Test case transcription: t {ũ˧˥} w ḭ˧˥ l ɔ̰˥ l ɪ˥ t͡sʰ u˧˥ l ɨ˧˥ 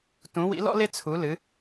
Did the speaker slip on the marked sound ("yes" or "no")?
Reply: no